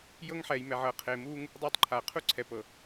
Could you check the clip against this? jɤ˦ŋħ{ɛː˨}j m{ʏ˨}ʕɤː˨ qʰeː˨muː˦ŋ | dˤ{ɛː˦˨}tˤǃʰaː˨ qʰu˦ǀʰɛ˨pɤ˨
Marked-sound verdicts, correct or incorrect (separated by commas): correct, incorrect, incorrect